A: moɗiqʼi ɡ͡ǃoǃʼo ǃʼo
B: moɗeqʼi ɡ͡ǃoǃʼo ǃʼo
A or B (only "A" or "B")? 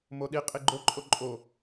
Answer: A